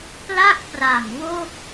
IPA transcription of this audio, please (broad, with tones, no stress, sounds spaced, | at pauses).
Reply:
p l a˥˩ k̚ p r a˨˩ m w o˥˩ k̚